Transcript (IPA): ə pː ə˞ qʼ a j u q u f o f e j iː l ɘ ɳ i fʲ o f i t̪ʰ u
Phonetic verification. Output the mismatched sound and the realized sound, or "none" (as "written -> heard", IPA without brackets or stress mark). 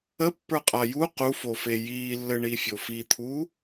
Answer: l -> lː